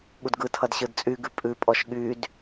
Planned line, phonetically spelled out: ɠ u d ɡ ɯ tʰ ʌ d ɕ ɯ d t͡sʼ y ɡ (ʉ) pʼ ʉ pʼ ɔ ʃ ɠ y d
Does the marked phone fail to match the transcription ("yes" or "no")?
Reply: no